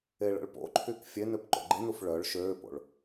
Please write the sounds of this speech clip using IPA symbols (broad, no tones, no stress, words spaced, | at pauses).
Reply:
eɭə̰ɭpo̰ǃʰyk fʲenøp ǃo̰ɡ͡ǃinuf ɭœɭ ʃøːpo̰ɭ